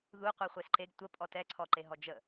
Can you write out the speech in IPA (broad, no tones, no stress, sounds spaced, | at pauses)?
ð u qʷ ɛ χʷ e s ǃ e ɡ tʷ ə pʼ ɔ t ɛ ǀʰ ɔ ǃ e ɦ ɔ d͡ʒ ə